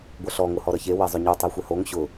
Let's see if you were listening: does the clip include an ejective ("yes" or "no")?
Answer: no